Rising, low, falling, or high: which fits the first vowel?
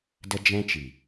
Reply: high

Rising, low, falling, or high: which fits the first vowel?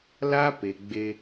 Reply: high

